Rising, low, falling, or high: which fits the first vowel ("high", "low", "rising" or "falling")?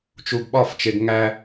low